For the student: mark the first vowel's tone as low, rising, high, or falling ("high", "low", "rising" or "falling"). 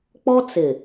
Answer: high